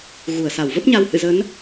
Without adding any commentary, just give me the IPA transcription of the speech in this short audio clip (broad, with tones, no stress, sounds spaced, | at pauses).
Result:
ɣ u˧˩ ə̯ s a˧˩ w v ə˦˥ p̚ ɲ a˧ w h ɨ̰˧˨ z ə˨˦ n